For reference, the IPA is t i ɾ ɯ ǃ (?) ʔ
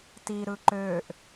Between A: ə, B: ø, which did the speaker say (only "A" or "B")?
B